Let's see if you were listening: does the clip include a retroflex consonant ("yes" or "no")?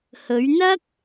no